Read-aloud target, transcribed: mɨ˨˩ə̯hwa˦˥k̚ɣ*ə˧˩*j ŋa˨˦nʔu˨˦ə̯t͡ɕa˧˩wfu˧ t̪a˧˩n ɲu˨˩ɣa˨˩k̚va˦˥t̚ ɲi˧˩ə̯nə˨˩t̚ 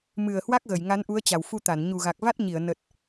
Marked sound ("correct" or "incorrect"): correct